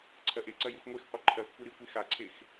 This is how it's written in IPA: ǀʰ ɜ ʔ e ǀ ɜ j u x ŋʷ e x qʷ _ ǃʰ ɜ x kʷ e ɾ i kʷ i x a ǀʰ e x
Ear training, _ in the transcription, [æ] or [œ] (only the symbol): œ